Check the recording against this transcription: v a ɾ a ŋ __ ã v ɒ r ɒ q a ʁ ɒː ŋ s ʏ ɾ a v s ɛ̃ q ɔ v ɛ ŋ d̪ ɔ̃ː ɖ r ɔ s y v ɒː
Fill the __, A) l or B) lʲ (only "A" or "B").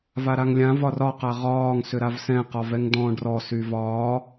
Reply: B